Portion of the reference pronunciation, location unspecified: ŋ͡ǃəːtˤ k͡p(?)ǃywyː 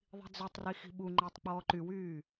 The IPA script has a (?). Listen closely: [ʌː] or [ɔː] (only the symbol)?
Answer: ɔː